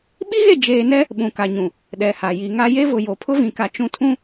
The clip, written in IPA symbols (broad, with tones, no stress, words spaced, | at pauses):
ɓi˦ɣe˦˨ d͡ʒeː˨nɛ˦ | ɓũ˨ka˨ɲũ˨ | ɗɛ˨ha˨ ji˨ŋa˦ je˦vʊ˨ jo˨ pʰʊ˦vĩ˨ka˨ t͡ʃũ˦tʰũ˦